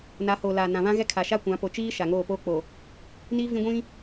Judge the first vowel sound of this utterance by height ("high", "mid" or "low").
low